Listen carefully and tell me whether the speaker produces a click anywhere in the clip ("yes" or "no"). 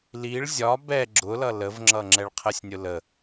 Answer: yes